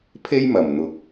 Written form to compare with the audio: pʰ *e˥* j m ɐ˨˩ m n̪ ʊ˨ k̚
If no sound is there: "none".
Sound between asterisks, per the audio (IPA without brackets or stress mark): e˥